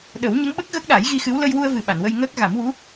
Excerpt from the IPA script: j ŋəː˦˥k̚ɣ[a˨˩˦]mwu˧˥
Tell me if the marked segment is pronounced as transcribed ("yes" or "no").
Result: yes